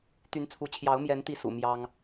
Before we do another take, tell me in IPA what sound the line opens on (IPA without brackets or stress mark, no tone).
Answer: t̪